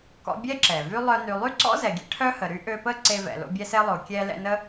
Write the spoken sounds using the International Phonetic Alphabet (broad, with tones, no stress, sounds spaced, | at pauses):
k ɔ̰˦ bʲ ɛ˥ ǁ ɛ˩ v y˥ lˠ œ˦ n y˨ lˠ y˥ ǀ ɔ̰˥ z ɛ˨ ɡʲ ḛ˥ ʈʰ œ˥ h ə˨ ɾ y˥ ʔ ø˦ p ə˥ ǀ e˦ v ɛ̰˨ l o̰˦ bʲ ɛ˦ s e˦ lˠ o˨ kʲ ɛ˦ l ɛ̰˦ n ə˥